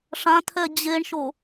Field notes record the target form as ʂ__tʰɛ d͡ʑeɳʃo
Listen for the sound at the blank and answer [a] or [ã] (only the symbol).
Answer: ã